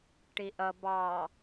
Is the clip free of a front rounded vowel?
yes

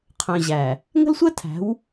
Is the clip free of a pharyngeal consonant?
yes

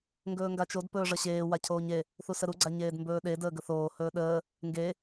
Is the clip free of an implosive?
no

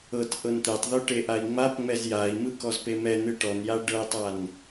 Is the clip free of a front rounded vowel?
yes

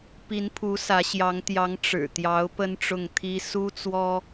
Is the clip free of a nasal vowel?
yes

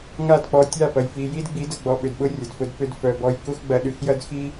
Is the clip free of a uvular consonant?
yes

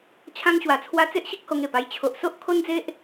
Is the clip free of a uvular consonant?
yes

